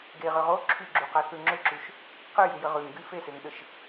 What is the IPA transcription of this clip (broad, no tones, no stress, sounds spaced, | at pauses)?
ɡ e ʁ ʏ ʁ o ǁʰ y ɡ͡ǁ u q a θ ʉ ŋ͡ǁ ʏ ǁ y ʃ | q ə j ʉ j ə ʁ ʉ ŋ ɡ y f e s e ŋ ɗ ə ʃ